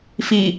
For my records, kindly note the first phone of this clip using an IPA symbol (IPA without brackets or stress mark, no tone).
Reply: f